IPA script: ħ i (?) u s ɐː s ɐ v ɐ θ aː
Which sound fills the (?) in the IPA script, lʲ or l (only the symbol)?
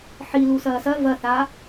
l